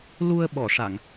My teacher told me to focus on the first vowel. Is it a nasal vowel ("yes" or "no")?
no